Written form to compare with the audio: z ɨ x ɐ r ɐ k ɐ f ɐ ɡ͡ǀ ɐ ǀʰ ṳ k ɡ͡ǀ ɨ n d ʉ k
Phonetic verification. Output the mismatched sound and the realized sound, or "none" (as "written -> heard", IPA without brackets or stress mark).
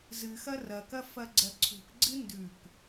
none